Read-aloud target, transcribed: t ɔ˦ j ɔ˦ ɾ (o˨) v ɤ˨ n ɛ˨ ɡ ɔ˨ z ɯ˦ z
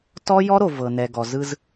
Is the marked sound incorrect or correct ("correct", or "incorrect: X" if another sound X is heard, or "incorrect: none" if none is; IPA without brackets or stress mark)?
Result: correct